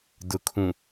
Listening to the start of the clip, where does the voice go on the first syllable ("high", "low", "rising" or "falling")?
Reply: low